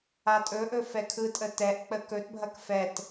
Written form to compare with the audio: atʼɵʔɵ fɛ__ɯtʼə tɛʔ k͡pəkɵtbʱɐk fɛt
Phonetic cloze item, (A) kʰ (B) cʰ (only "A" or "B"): A